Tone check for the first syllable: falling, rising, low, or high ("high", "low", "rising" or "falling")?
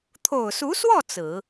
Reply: low